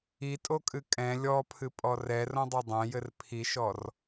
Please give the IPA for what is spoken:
itʼokʼɨ kʼɛ̃ lʲɔpʰɨpʼɔ rɛrõdˤɛ dˤɛ̃jɘr pʰiʃɔr

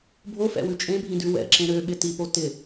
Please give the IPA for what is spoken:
bʱofɛ̰wʉ t͡ʃʼẽbʱĩdʉ wɛ̰ǁẽ ɾøɓɪ tipo tɪ

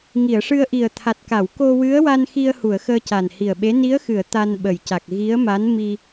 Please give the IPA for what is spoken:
ŋi˨˩˨ə̯ʂɨ˧ə̯ ʔi˨˩ə̯ t̪ʰa˨˩t̚ka˨˩˨w ko˧wɨ˧˥ə̯wa˧n xi˧ə̯hu˨˩˨ə̯ xəː˧ca˨˩nhi˨˩ə̯ɓe˧˥ ni˧˥ə̯xɨ˨˩˨ə̯ t̪a˧nɓə˨˩jca˨˩k̚ ɣi˧˥ə̯ma˧˥n mi˧

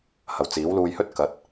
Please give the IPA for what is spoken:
hɐ˨wt͡siː˨˥wluː˧jhɵ˥t̚ kɐ˨˥t̚

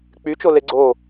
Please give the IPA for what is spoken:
k͡pyt͡ʃole ɡ͡ǀo

